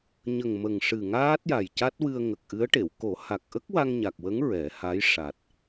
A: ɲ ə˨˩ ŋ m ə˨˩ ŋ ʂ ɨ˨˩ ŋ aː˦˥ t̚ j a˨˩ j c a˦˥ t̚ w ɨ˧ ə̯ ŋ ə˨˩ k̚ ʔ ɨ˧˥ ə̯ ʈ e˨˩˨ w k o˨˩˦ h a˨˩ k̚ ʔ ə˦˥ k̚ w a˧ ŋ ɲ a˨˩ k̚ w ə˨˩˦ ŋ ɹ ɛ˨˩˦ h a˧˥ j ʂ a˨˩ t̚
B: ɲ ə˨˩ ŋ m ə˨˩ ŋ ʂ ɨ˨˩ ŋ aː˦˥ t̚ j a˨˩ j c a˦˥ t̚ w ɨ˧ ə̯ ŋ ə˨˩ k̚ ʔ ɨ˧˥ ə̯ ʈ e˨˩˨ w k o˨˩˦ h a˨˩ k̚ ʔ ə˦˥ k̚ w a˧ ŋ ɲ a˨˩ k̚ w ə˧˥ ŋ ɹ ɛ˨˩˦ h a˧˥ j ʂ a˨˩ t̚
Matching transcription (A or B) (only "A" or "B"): B